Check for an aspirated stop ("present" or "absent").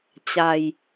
absent